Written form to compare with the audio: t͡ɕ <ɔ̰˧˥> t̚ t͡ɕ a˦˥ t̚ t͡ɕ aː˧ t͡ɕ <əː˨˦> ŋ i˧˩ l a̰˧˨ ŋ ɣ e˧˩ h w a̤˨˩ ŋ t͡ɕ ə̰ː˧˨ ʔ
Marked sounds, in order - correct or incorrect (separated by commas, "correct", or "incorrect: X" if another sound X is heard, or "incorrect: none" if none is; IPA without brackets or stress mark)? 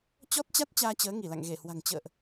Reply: incorrect: ɔ˦˥, correct